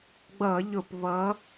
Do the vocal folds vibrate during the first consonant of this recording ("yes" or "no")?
yes